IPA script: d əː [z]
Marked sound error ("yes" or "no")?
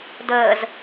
no